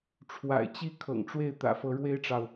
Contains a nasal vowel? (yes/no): no